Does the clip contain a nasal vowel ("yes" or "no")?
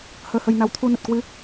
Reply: no